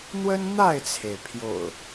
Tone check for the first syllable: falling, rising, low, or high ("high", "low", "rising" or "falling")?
high